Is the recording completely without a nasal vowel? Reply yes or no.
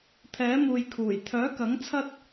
yes